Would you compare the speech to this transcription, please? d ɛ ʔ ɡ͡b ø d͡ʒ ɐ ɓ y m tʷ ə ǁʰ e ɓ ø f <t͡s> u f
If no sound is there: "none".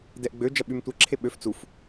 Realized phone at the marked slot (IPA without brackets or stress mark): t͡s